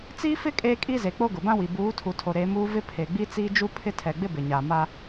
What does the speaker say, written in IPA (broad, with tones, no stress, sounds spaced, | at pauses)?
t͡s iː˦ f ɪ˦ kʼ eː˦ kʼ i˦ z e˨ k͡p o˦ ɡ ʊ˨ b ã˦ w i˨ b uː˨˦ tʰ u˨ tʰ o˨ ɾ e˨˦ m uː˦ v ɪ˦ pʰ e˨ ɡ͡b i˦ t͡s iː˦ d͡ʒ u˦ pʰ ɪ˦ tʰ ɛ˨ ɡ͡b ɪ˦ b ɪ˨ ɲ a˨ m a˦